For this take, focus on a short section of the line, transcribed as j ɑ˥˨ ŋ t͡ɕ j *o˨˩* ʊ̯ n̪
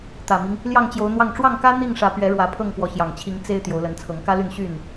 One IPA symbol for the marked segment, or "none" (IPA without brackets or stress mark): o˨˦